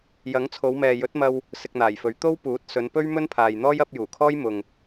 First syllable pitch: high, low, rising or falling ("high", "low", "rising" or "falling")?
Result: rising